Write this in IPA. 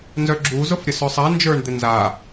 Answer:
n z œ ɡ͡ǁ u z ʊ f ɾʲ ə s œ sˤ a n d͡ʒ ə˞ ɳ d̪ ɪ n z a

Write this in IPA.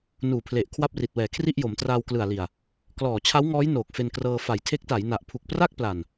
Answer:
n uː˨˩ pʰ l e˨˩ ʔ kʰ w a˥˩ p̚ r i˨˩ t̚ w ɛː˩˦ kʰ r i˥˩ ʔ j o˩˦ m t r aː˧ w k l ɯ˨˩ a̯ l i˨˩ a̯ | k l ɔː˨˩ t͡ɕʰ a˦˥ w ŋ ɔː˦˥ j n oː˨˩ k̚ f e˧ n k r ɤː˧ f a˨˩ j tʰ e˦˥ k̚ t a˩˦ j n a˨˩ ʔ pʰ u˨˩ k̚ p r a˥˩ k̚ p l a˨˩ n

